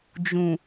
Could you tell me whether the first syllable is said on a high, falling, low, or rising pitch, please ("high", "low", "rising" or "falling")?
low